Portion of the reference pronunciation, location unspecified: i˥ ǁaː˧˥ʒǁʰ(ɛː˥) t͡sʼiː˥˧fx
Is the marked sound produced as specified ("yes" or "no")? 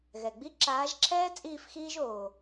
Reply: yes